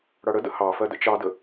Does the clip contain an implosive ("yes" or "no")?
no